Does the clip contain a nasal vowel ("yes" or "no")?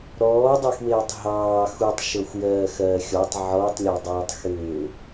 no